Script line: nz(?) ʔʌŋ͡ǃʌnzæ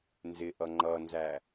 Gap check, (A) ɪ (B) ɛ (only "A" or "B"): A